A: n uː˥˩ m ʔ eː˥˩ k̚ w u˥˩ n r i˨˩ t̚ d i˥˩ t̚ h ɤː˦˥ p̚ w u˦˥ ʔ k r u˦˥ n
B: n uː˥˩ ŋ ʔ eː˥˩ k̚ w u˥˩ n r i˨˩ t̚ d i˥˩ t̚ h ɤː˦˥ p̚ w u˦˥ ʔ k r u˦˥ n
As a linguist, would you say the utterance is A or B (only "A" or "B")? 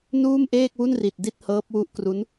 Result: A